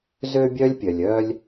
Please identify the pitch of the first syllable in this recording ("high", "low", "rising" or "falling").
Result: high